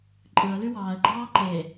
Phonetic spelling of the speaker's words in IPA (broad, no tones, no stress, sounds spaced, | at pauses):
ǃʼ ɯ ə̯ l y w ɑː ə̯ ɡ͡ǃ ɑː ǃ e